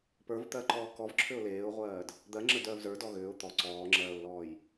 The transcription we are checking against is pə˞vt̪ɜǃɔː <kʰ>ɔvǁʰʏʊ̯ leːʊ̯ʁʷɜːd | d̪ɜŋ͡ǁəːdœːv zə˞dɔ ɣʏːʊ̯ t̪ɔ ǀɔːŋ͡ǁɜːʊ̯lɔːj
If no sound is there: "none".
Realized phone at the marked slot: k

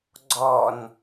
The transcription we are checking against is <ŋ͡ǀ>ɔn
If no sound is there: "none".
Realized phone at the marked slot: ɡ͡ǀ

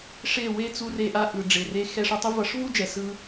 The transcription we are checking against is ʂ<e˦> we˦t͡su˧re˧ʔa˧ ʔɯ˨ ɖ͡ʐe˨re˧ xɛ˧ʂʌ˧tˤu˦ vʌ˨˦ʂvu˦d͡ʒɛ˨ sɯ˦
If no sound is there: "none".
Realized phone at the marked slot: e˦˨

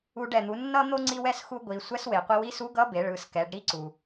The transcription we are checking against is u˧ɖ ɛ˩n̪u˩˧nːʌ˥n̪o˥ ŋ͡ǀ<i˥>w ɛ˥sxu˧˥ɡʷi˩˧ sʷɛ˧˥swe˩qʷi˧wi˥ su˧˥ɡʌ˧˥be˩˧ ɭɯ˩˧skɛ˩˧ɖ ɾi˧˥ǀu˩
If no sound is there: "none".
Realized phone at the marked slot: i˥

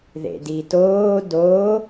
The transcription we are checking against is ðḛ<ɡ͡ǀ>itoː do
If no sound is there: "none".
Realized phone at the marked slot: d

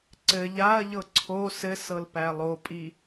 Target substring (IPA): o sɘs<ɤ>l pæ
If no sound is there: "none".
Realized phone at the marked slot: ɤ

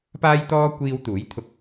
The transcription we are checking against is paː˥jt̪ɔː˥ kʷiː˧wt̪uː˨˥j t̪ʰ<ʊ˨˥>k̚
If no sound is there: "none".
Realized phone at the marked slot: ʊ˧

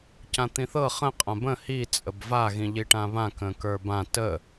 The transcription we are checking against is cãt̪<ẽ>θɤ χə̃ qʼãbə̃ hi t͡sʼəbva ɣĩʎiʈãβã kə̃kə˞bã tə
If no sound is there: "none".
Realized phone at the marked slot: ĩ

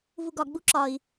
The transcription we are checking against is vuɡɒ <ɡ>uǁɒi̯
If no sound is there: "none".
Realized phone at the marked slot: ɡ͡b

